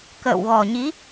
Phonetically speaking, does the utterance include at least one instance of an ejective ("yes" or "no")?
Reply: no